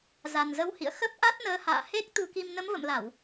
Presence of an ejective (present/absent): absent